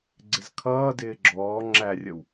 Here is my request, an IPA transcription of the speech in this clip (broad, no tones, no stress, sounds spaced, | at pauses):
ɡ͡ǀ ɪ z kʰ ʌː d ɪː ɡ͡ǁ ɔː ŋ͡ǁ æ rʲ ə w